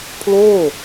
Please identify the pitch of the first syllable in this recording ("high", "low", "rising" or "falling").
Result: falling